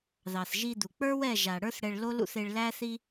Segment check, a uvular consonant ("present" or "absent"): absent